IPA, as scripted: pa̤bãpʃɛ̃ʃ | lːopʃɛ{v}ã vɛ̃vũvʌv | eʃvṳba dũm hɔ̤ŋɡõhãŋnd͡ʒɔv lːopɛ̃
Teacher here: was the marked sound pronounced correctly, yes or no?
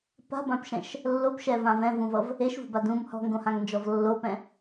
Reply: yes